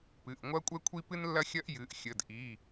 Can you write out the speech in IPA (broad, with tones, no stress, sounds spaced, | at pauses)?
p ɨ˩˧˩ ʔ ŋʷ ɐ˥ kʷʼ ɛ˥ kʷʰ i˥ p ɨ˥ n lː ɐ˥ xʲ ɐ˥ ʔ j ɨ˩˧˩ ʔ xʲ ə˩˧˩ d ʔ i˩˧˩